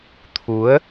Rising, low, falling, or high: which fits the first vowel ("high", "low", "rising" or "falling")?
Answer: rising